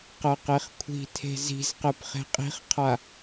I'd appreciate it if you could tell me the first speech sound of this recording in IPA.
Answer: q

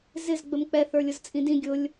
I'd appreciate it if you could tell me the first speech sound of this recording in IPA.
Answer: z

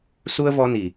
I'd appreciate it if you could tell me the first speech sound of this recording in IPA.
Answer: s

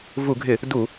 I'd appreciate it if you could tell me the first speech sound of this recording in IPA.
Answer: v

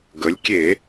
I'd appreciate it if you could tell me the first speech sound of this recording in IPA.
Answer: ɡ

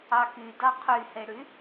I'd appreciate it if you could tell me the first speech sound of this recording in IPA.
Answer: ɑ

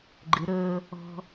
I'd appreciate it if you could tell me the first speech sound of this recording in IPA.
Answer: ɡ͡ǃ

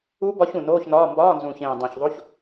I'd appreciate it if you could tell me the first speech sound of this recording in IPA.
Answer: u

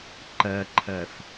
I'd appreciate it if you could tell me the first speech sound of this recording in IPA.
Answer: ǃ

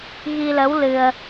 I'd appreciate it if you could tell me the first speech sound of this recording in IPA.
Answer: ɣ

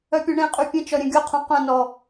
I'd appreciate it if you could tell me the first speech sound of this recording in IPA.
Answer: œ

